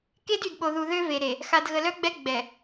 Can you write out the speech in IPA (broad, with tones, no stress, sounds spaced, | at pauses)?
k e˦ d y˨ d ɓ o˨ ð u˨ ð ø˦ v e˨ ɾ e˨ | x a˨ d ɣ ə˨ l œ˦ ɡ͡b ɛ˦ ɡ͡b ɛ˨